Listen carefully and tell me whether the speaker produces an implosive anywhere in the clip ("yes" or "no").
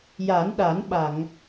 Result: yes